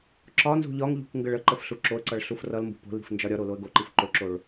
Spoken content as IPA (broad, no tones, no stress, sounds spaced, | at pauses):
ǁ ɒ n z ṳ ʎ ɒ ŋ ʎ ṳ k ŋ ɡ ə ɭ ə ǃ ə f ɬ u ǁ o ə̯ ǀ ʌ ɭ ɬ u f r ʌ l m b ṳ p o̤ l i̤ f n d͡ʒ ɒ ɾʲ ɒ ɾ o l o ə̯ ɡ o ǃ i f ǃ o ǁ o ɭ